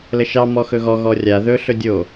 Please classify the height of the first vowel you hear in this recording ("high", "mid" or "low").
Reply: mid